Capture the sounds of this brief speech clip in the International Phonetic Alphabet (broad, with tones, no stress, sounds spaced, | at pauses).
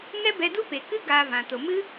ŋ ɛ˦ b ɛ˧ d u˦ p e˨ k ɨ˦ ɡ aː˧ v ã˨ t o˨ m ɨ˦